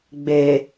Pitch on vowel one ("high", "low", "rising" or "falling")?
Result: low